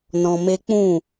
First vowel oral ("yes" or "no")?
no